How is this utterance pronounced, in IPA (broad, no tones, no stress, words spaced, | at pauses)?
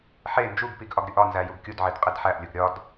ħe nd͡ʒuɡpiɡ ʔɒɡɾʲuʔɒnzæ juɡkʲudʕid qʼidħæʔlʲuɡ ɾʲɒd